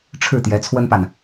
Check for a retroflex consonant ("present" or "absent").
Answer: present